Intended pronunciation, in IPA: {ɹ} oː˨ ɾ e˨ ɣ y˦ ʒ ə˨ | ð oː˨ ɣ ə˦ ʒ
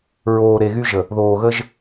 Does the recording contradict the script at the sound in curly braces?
no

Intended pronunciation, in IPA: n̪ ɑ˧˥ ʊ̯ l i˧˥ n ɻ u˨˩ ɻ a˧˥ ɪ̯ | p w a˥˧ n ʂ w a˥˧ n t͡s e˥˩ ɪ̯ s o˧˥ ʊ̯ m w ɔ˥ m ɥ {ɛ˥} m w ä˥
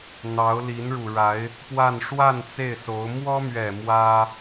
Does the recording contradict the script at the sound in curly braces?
yes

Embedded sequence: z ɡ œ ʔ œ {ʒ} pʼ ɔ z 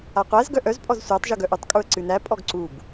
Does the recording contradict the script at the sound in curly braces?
yes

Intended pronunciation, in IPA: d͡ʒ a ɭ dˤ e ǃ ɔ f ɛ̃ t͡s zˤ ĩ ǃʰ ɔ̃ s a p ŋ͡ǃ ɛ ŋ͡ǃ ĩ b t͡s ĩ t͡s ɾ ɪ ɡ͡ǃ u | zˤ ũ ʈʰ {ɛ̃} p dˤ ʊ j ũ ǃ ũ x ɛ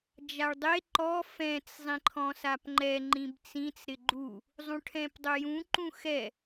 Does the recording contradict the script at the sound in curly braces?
no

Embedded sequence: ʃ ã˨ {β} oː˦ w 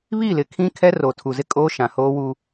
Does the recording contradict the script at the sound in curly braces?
yes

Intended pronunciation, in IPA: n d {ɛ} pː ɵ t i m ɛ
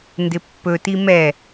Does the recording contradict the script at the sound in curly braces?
yes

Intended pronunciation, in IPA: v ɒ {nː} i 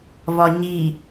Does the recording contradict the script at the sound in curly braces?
yes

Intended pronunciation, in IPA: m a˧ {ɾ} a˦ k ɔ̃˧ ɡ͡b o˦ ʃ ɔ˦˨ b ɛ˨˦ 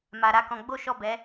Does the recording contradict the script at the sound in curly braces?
no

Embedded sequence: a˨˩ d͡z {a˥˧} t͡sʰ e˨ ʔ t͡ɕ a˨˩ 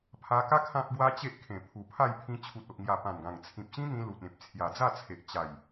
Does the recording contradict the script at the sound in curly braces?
no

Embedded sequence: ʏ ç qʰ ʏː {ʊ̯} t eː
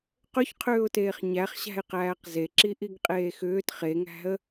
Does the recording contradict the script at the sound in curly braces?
no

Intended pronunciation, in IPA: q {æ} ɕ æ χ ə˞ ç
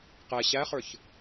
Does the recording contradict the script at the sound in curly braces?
yes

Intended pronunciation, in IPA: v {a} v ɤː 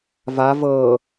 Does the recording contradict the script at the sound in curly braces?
no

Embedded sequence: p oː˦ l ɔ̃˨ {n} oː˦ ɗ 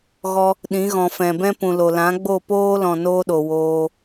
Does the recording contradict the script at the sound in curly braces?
no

